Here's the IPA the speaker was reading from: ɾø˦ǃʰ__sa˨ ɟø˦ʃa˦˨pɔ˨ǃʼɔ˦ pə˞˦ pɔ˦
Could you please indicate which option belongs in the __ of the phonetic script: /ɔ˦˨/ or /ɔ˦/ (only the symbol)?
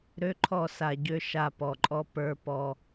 ɔ˦˨